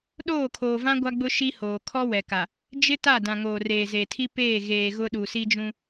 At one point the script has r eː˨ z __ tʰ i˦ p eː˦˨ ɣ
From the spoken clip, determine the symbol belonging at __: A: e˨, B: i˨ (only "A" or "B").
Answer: A